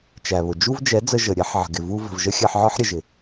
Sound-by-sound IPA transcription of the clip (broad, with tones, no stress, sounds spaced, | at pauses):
t͡ʃ æ˨ β ʊ˨ d͡ʒ u˦ v d͡ʒ ɛ˨˦ d͡z ə˧ ʒ ə˨ ɾʲ ɛ˦ ħ ʕ ə̤˨ ɡ ɪ˨ v u˦ v ə̤˨ v ʒ ə˦ xʲ ɜ˧ ħ ʕ ɒ˦ ħ ɾʲ ə˨ ʒ ɪ˨